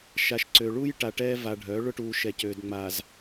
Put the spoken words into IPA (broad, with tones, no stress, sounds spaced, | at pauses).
ʃ a˨ ʃ ǀ ø˨ ɭ u˦ j ʈ a˨ ʈ ɛː˦ v a˨ ɖʱ œː˨˦ ɭ ʊ˦ ʈ uː˨ ʃ ɛ˨ c øː˨ d ŋ͡m a˨ z